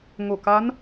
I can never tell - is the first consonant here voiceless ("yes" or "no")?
no